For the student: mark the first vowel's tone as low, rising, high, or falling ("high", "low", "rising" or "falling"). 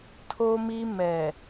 high